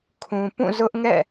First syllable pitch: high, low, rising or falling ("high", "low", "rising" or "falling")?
low